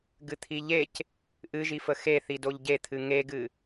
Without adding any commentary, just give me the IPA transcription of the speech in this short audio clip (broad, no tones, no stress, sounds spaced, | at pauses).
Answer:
ɡ ɨ t̪ʰ i ʎ e c | ʔ ɨ ʒ i f ə x e θ i d o ʎ ɟ e t̪ʰ ɨ ŋ e ɡ ɨ